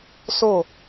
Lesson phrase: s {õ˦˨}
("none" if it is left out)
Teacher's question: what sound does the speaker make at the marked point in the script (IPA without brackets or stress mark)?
o˦˨